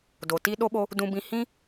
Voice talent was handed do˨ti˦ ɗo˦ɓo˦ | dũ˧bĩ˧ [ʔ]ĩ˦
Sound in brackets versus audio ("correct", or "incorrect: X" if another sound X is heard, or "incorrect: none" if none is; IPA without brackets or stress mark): incorrect: h